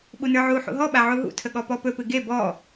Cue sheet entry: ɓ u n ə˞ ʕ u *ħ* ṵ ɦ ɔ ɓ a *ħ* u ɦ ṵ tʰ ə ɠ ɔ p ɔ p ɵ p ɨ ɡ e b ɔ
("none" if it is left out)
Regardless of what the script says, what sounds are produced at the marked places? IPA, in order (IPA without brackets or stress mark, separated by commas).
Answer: ħ, ʕ